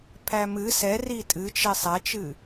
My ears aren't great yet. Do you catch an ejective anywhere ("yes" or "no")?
yes